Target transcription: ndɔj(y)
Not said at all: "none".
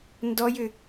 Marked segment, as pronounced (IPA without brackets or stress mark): ʏ